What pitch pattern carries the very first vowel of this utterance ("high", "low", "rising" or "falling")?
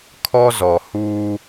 high